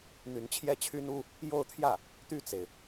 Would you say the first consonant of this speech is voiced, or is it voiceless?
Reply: voiced